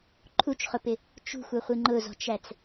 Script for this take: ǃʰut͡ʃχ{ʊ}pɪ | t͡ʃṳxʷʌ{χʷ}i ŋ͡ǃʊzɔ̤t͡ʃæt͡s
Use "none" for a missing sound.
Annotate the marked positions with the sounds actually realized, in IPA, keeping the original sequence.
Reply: ʊ, χʷ

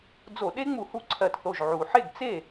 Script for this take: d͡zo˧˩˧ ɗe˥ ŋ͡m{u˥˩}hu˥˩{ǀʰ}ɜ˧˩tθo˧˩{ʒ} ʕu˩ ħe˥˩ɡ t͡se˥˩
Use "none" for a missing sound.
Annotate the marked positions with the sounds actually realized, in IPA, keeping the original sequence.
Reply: u˧˩˧, ǀʰ, ʒ

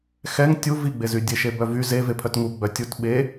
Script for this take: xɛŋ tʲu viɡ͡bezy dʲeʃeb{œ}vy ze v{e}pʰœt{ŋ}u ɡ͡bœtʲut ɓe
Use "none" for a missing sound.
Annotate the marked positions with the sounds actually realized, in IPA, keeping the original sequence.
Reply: œ, e, ŋ

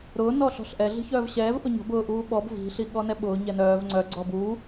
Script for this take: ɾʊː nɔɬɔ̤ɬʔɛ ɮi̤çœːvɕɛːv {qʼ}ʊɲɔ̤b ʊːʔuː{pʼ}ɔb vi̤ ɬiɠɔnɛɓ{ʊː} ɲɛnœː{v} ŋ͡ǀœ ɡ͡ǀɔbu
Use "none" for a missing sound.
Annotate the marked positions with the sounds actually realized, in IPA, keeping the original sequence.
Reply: ʔ, ɓ, ʊː, v

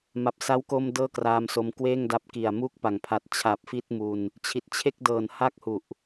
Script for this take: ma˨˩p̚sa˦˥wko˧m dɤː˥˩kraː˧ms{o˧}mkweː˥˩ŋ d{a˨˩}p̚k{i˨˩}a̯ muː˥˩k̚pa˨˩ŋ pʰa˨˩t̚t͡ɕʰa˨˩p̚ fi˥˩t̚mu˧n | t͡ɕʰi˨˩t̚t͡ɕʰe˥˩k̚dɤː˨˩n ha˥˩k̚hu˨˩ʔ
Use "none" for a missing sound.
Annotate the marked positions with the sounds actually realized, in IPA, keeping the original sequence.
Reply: o˧, a˦˥, i˨˩

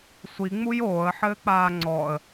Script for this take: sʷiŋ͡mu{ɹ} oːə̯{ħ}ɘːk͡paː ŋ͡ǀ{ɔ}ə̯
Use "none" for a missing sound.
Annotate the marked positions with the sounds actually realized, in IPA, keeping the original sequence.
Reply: j, ħ, ɔ

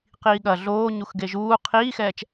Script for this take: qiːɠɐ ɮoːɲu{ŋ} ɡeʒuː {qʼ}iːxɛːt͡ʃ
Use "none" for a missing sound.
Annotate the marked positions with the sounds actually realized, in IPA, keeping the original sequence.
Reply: x, qʰ

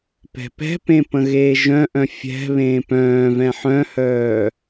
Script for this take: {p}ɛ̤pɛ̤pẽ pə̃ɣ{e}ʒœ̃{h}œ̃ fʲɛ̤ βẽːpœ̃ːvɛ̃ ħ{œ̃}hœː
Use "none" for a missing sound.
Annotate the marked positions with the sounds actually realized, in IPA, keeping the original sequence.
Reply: p, eː, ʔ, œ̃

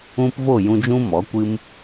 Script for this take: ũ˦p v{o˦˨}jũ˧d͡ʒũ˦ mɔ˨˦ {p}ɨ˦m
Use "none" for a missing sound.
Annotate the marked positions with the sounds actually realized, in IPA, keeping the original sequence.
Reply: o˦˨, kʷ

